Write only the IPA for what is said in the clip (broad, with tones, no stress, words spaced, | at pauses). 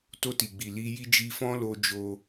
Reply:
to˧ti˨ɡ͡bi˨ li˧ ji˧d͡ʒi˧fɔ̃˦lo˧ d͡ʒo˧